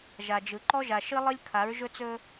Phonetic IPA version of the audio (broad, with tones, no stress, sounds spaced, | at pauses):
ʒ a˨ d͡ʒ ɯ˨ ǃ ɔ˦ ʒ a˨ ʃ ɨ˦ lˠ ɯ˦ lʲ kʰ a˨˦ ɹ ʒ ɵ˦ t͡s ɵ˦